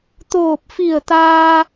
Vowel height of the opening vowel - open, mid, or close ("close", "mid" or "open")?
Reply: mid